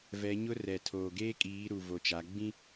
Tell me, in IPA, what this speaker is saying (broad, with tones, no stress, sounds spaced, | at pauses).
v ɛ˨˦ ɲ ʊ˦ r ɛ˨ tʰ oː˨ ɡ eː˦ kʼ iː˨˦ ɾ u˨ v o˨ t͡ʃ a˨˦ ɡ͡b ĩ˦